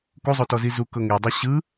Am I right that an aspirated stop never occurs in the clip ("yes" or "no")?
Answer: yes